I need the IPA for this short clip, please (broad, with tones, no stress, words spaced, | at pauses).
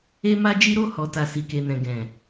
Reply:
e˦ma˦d͡ʒi˦ ɾo˦˨ hɔ˨ta˨ si˨ke˨nɛ̃˨ ɡɛ̃˨